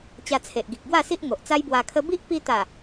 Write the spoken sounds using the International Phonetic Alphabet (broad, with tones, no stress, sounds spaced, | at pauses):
t͡ɕ a˧ t͡sʰ e˨ ʔ ɡ i˨ k̚ ɡ w a˥˧ s i˦ ʔ ŋ o˨ ʔ t͡s a˦ j b w a˧ kʰ ə˦ b i˦ ʔ p i˧ t̪ a˨˩